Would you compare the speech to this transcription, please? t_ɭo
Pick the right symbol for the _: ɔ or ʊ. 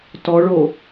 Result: ɔ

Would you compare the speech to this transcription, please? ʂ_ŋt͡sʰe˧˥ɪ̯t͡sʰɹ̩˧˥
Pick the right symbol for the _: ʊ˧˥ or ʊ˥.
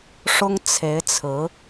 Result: ʊ˥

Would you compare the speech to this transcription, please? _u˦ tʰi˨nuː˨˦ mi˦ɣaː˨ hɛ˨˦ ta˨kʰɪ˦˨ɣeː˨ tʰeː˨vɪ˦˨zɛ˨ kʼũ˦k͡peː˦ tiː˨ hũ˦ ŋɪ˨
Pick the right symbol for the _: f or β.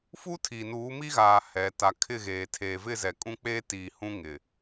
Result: f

